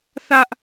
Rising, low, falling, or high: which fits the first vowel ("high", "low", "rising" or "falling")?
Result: high